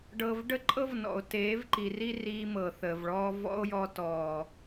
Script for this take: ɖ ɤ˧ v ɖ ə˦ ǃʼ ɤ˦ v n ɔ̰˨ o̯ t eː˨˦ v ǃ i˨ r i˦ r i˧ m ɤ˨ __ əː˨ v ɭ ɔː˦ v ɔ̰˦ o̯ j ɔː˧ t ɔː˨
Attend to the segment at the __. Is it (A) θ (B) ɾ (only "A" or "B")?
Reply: A